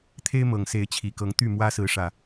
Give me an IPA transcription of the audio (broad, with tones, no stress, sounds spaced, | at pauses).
t̪ʰ e˦ ɪ̯ m ɤ˨˩ ŋ s e˨˦ ɪ̯ t͡ɕʰ i˨˩ k ɤ˨˦ ŋ t̪ y˥˨ m w ä˦ s ɹ̩˨˦ ʂ ä˨˩